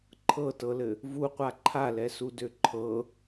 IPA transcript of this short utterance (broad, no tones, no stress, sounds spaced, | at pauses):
ǃʰ ɤ t ɤ l ɘ | v u qʷ a ǃʰ a l ɛ s u d ø ǃʰ ɤ